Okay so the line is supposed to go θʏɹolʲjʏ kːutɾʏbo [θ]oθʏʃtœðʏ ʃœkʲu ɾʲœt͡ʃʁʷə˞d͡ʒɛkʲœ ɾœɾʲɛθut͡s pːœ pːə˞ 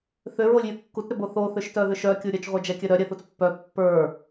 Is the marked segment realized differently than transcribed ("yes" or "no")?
no